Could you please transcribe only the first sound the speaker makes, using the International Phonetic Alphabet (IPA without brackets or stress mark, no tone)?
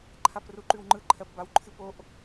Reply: ǃʰ